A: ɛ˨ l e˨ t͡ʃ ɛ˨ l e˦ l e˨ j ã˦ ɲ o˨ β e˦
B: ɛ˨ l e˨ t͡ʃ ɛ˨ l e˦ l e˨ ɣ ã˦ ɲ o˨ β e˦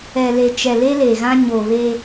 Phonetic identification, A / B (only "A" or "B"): B